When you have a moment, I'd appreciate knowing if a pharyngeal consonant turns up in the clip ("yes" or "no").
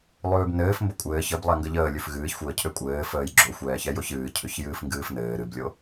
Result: no